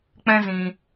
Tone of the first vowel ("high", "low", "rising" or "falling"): high